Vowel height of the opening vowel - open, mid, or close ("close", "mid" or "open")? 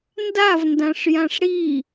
open